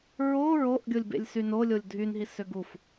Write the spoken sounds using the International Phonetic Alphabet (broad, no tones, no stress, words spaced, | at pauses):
ɹo ɹoʔ ɡʲolʲbḛlʲsyno lʲolʲdʱynɦi søɡuf